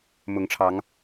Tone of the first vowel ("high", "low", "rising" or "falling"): rising